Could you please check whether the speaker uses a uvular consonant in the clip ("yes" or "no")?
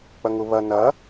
no